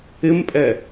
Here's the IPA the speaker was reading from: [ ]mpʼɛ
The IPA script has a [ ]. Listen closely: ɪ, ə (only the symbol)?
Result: ɪ